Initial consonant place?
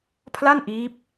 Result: labial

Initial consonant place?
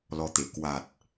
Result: alveolar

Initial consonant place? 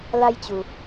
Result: alveolar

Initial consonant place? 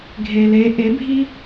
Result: velar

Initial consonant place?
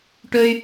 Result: retroflex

